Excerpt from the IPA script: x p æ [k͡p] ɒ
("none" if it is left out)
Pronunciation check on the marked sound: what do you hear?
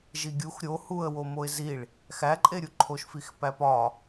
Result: p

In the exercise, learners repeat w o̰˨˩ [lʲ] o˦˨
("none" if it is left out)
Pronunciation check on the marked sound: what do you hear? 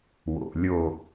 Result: lʲ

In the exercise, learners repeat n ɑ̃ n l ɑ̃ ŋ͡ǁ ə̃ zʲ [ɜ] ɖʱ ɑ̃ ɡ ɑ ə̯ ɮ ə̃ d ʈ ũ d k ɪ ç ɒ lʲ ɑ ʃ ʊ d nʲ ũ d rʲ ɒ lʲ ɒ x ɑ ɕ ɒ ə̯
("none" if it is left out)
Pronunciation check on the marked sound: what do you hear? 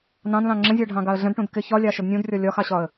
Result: ɜ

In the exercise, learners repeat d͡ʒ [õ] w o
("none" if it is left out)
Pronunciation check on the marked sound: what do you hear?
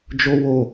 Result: o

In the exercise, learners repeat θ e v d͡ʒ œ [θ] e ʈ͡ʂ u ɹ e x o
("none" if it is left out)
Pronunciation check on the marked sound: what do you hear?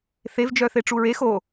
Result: θ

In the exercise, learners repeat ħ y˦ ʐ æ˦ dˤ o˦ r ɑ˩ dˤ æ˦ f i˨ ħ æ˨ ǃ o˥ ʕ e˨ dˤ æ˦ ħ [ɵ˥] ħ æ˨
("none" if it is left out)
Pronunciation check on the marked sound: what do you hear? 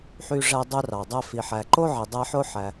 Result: o˥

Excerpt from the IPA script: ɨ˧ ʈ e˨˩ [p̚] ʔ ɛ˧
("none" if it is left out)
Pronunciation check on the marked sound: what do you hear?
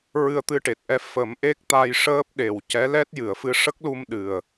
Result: t̚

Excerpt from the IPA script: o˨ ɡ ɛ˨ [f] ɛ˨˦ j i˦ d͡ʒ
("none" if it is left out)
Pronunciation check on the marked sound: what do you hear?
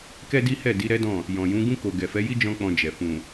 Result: f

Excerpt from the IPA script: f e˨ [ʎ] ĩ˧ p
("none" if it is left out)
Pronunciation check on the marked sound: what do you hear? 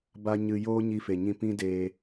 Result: ɲ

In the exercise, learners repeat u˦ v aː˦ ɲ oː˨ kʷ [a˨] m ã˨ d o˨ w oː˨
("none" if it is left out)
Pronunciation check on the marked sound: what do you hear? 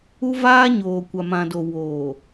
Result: a˨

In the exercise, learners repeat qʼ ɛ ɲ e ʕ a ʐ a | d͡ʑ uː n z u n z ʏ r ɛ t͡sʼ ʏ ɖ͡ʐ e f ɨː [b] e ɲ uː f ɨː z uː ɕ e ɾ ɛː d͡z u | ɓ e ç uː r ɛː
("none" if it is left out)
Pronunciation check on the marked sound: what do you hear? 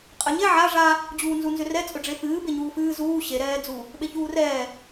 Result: b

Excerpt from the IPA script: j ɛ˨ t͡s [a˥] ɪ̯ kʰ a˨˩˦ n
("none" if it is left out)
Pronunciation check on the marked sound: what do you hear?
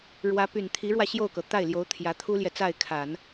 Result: a˥˩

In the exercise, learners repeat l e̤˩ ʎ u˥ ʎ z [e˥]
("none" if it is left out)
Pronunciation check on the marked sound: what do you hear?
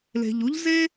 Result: e˥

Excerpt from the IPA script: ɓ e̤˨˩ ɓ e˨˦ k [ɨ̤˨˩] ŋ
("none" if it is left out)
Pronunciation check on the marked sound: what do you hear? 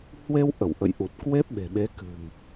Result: ɨ̤˨˩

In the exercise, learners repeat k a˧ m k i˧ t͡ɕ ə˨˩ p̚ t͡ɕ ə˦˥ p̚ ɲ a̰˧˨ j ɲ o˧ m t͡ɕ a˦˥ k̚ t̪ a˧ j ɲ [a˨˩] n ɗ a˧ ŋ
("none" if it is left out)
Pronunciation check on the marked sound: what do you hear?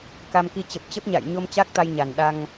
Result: a˨˩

